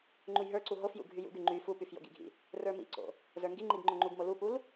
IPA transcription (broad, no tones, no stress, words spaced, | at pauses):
ŋ͡ǃujɦə˞ǀu ɦofjṵ ɡʱyjṵɡy ŋ͡ǃy fupyf jo̰ɡḭɡʱḭ | rə˞mḭǀo̰ | zə˞ŋɡiŋ͡ǃiɡ ŋ͡ǃoŋ͡ǃuɡmo lupul